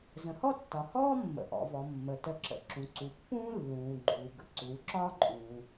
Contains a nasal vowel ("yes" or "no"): yes